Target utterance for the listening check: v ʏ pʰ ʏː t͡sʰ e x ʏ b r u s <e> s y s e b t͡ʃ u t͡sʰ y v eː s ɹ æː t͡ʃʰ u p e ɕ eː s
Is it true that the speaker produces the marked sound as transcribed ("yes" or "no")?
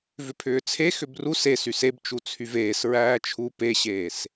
yes